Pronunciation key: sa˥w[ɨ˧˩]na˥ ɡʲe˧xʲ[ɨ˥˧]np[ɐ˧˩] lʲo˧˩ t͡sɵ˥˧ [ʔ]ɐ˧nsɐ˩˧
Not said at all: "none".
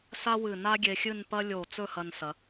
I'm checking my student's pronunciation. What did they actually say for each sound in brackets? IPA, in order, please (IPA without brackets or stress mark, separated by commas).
ɨ˧˩, ɨ˥˧, ɐ˥, h